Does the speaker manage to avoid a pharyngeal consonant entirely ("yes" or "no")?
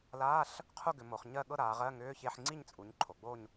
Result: no